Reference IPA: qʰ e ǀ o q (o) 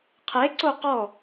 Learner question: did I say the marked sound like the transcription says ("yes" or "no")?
no